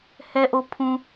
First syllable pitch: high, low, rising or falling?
high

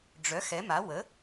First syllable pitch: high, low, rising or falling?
rising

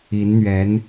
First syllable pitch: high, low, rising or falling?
rising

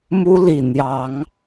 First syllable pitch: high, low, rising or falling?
high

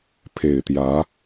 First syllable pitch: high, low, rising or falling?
low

